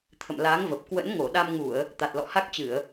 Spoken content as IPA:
t̪ʰ ə̰˧˨ m l aː˨˦ ŋ v ə˨˩ p̚ k w ə̰˧˥ n ŋ o˧˩ ɗ a˧ m ŋ u˧˩˨ ə̯ | t̪ a˨˩ t̚ l ɔ̰˧˨ h a˦˥ k̚ t͡ɕ ɨ˧˩˨ ə̯

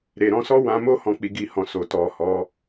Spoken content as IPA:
ɾ e˨ ɾ ɔ̃˧ s ɔ˦ w ã˧ m o˦ h ɔ̃˦˨ k͡p i˧ ɡ i˧ h ɔ̃˨ s o˨ t ɔ˨ h ɔ˨˦

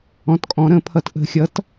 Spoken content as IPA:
ɔ̃˧˥ t kʼ ɔ̃˧˥ ɾ ə̃˧ pʰ ʌ˧ t ʔ ə̤˧ xʲ ʌ˧˥ t

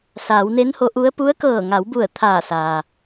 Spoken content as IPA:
s aː˩˧ w n e˧˥ n h o˧˥ ʔ u˧˥ ə̯ p u˧˥ ə̯ k ɤː˧˩ ŋ a˩˧ w b u˧˩ ə̯ t̪ʰ aː˧˩ s aː˩

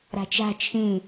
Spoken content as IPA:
ɾ a̤ t͡ʃ a̤ t͡ʃʰ ĩ

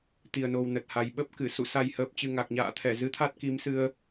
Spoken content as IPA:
t̪ i˨˩ ə̯ n o˨˩ w n ə˨˩ t̚ h a˨˩ j ɓ ə˦˥ p̚ k ɨ˧˩ s ṵ˧˨ s a˨˩ j h əː˨˩ p̚ t͡ɕ ɨ˨˩ ŋ a˨˩ k̚ ɲ a̰ː˧˨ t̪ʰ ɛ˧˩ z ɨ˨˦ t̪ʰ a˦˥ t̚ k i˨˦ m s ɨ˧ ə̯

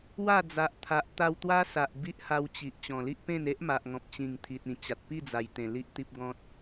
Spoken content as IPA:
w a˥˧ d͡z a˨ ʔ t̪ʰ a˨ ʔ t̪ a˧ w t̪ w a˦ s a˨ ʔ b i˦ ʔ h a˧ w t͡ɕ i˨ ʔ t͡ɕ ɔ̃˨˩ l i˦ ʔ p ẽ˥˧ n e˦ ʔ m a˨ ʔ ŋ ɔ̃˨ p̚ t͡ɕ ĩ˨˩ ŋ t̪ʰ i˨ t̚ ĩ˨˩ t͡ɕ a˨ t̚ p i˥˧ d͡z a˨˩ j t̪ ẽ˨˩ l i˦ ʔ t̪ i˦ p̚ ɡ ɔ̃˦ t̚

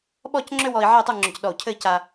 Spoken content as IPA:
ɓ ɔ˥˧ c ŋ͡ǁ ʏ˥ w ɔ˧ i̯ ʕ ɛ˥˧ tˤ u˥˧ ŋ͡ǁ ʏ˧˩ c ɗ ɔ˧˩ u̯ cʰ ɘ˥˧ i̯ c a˧

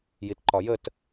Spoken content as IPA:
j i t ǃ ɒ j ə t

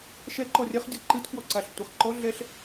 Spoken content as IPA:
ʃ ɛ ǃ ɔ rʲ ɐ χ dʲ ɔ ǃ ɨ t k w ɔ ǀ a ɬ tʷ ɐ χ ǃ ɔ ɮ ɛ ɬ

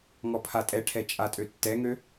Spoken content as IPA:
ŋ ɔ pʰ a tʼ ɛ ʈʰ ɛ t͡ʃʼ a tʼ ø tː ɛ ŋ ø

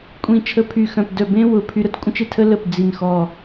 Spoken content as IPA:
kʷʼ ĩ˧˩ t͡ʃʰ ə˧ pʰ y˧˩ x œ̃˧˩ p d œ˧˩ b ẽ˥ w ʊ˩˧ pʰ y˧ ɾ ə˥ t kʷʼ ə̃˥ t͡ʃ e˥˧ tʰ ə˥ l ə˧˩ p d͡z i˧˩ n x ɔ˧˩

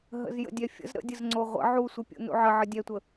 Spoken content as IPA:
ɦ ə̰ z j ə̰ dʲ ɛ fʲ ə̰ z ɾ ə̰ dʲ ə z ŋ͡ǀ o ʁʷ ə̰ ʕ u sʷ ɯ pʲ ṵ n ṵ ʕ ə ʕ ə dʲ ɛ tʷ ə

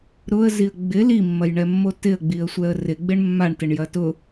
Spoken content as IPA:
ɾ ʊ ə̯ z i ə̯ ɡ͡b ɪ l i mː ɐ j ɳ ɛ mː o t ɪ ə̯ ɡ͡b i ə̯ sʷ ɛ ə̯ r ɪ ɡ͡b ɪ ɳ mː a ɳ t ɪ ɳ j ɐ t ʊ

